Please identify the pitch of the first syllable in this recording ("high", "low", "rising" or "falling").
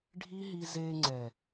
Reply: high